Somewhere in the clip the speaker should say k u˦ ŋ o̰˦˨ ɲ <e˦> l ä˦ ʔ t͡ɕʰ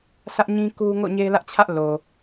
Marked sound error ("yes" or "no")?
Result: no